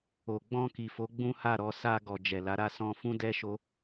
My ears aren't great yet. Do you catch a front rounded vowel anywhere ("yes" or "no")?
no